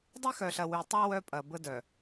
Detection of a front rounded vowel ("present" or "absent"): present